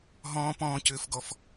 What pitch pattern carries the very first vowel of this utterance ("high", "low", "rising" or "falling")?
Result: high